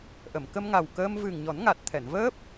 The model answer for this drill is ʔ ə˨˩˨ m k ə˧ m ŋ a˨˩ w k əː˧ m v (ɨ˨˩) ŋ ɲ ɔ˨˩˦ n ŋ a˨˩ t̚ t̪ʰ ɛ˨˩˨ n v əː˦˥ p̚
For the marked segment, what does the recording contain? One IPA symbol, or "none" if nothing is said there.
ɨ˨˩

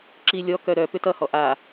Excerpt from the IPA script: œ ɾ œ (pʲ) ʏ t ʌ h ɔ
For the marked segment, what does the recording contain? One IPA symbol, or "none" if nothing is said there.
p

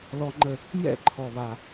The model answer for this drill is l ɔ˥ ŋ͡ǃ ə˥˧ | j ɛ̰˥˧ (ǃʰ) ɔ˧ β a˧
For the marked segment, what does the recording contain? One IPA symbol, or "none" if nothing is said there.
ǃʰ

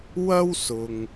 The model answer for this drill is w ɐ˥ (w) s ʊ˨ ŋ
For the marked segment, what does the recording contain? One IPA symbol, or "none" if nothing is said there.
w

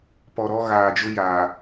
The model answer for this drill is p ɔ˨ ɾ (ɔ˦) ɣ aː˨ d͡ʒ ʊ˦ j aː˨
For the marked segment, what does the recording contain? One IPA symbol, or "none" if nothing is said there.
ɔ˦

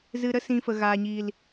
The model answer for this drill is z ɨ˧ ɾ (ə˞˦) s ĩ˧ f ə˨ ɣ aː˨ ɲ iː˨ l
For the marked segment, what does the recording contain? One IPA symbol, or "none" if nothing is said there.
ə˦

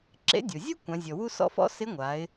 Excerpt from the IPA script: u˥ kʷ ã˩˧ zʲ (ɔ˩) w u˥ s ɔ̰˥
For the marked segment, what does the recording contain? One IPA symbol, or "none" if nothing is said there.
ɔ˩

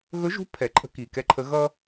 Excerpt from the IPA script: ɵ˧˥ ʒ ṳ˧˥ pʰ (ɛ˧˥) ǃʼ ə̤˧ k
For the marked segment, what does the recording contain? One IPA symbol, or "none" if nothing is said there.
ɛ˩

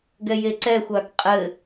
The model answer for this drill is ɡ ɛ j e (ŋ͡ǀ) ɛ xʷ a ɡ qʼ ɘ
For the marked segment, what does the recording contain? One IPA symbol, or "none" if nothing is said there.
ǀ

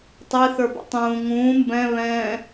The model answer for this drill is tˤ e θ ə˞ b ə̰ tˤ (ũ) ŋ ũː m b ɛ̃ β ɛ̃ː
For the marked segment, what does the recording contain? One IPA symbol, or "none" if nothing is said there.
ũː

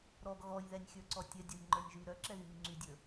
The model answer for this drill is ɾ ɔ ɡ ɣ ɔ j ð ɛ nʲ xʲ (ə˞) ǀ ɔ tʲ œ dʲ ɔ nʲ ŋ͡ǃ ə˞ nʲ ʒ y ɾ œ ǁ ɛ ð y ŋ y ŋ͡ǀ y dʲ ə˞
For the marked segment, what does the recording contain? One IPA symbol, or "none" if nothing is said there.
ə˞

